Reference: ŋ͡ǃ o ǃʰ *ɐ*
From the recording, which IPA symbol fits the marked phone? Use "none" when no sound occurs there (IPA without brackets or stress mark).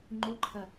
ɐ